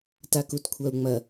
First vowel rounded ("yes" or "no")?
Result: no